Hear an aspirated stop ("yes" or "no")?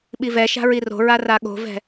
no